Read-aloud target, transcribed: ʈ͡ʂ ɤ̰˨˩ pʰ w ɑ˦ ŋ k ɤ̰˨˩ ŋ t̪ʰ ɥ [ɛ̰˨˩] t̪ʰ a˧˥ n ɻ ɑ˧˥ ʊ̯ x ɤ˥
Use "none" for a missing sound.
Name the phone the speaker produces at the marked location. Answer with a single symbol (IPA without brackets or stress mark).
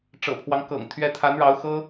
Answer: ɛ˧˥